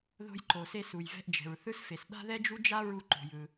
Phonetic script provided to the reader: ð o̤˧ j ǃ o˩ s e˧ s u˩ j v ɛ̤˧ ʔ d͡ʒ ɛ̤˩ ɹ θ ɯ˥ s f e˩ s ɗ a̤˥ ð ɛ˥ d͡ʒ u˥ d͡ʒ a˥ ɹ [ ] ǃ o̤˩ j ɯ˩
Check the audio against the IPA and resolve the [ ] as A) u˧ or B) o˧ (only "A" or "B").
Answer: A